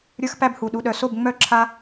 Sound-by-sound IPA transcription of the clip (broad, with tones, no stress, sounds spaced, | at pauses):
ɾʲ ə˞˥ x p æ˥ b h u˨ ɗ u˨ ɗ œ˨ s o˥˨ b ŋ͡m œ˥˨ ǁʰ a˥